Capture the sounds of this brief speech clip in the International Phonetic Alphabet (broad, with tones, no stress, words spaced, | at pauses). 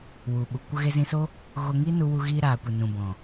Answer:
wu˨ɓu˨ kʷə˧ɣe˧zĩ˧so˦ | ɣo˧ŋiː˦nu˧wu˧ ɣiː˧ɾaː˨kʷe˨ nũ˨bɔ̃˨